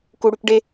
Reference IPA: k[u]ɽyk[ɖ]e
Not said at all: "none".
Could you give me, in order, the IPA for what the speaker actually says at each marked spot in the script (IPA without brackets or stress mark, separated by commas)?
u, ɖ